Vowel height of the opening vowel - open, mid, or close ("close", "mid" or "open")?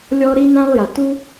mid